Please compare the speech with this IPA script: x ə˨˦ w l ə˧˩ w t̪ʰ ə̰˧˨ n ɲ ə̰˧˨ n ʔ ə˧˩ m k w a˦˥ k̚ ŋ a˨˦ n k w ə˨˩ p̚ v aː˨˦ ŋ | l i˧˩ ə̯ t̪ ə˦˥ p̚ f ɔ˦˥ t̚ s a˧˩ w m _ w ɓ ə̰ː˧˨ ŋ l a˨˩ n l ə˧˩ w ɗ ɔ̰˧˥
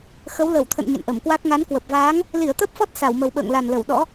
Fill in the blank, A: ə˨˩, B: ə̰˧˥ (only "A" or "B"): A